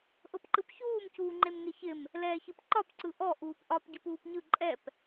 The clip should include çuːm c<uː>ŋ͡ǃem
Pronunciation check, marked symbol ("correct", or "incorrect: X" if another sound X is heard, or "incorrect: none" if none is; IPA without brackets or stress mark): correct